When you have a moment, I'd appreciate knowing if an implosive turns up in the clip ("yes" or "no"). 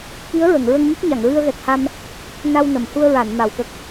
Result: no